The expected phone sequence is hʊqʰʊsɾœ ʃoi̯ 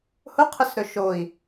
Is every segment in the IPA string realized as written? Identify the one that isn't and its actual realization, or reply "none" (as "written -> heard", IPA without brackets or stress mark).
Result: œ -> ɵ